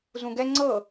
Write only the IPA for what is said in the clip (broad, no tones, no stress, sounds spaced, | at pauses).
z ũ ɡ ɛ ŋ͡ǀ ɤ